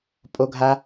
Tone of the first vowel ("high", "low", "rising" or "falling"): high